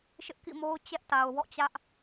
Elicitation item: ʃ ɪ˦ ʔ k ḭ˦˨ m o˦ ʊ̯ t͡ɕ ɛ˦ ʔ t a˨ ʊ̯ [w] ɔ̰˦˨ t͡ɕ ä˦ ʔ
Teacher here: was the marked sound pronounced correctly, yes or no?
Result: yes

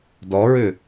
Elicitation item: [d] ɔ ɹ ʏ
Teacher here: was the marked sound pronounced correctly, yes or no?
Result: yes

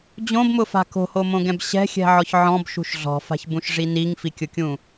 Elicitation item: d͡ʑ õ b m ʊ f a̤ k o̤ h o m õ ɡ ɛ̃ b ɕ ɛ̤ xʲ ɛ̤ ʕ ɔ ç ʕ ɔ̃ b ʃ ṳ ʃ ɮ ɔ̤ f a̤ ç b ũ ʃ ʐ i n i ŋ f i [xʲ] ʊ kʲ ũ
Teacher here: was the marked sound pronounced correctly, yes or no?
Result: no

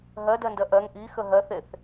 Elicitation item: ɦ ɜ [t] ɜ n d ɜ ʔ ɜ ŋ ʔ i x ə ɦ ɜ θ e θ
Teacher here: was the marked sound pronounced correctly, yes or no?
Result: no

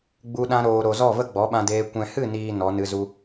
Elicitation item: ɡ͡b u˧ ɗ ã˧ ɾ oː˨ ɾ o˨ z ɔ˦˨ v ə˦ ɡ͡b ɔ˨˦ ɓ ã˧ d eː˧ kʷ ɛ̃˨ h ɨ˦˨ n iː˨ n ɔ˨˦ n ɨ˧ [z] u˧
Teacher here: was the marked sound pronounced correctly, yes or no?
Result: yes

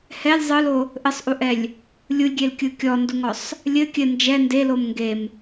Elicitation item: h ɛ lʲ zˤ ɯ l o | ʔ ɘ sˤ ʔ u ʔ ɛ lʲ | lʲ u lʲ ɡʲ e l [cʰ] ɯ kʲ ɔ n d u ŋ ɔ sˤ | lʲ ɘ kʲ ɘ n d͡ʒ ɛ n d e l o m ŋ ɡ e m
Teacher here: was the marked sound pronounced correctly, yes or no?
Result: no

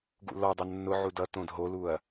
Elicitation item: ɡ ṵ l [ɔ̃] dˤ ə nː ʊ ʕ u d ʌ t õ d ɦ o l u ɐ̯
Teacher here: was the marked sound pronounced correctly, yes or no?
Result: no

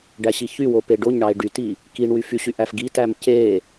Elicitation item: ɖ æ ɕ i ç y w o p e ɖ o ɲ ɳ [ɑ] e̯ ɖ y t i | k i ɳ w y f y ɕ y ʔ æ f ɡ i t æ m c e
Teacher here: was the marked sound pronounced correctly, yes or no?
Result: yes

